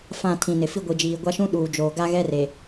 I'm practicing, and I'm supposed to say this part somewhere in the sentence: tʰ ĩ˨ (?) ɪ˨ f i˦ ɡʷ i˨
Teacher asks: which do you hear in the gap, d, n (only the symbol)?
n